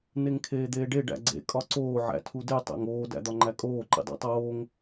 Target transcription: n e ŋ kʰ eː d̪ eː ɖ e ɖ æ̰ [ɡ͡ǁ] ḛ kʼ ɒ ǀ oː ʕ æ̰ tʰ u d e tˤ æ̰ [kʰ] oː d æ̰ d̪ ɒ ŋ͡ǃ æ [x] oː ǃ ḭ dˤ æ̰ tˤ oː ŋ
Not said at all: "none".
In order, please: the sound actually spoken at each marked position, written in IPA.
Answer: ɡ͡ǀ, ŋ, kʼ

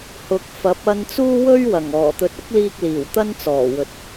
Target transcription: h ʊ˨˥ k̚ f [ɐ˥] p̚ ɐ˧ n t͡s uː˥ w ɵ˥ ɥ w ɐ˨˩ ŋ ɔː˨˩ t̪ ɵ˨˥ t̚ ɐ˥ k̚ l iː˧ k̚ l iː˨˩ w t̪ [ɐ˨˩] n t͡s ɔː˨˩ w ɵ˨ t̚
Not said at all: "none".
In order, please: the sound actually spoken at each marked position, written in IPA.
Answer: ɐ˨˥, ɐ˥

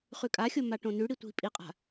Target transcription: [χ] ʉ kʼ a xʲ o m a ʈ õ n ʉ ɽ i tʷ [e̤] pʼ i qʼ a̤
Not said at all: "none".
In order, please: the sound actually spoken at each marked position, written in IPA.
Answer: χ, i̤

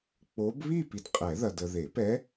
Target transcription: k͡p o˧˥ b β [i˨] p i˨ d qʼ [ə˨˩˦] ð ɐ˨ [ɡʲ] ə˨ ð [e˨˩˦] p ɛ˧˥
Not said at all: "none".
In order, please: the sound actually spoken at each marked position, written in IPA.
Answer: i˥˧, ɛ˨˩˦, d, e˨˩˦

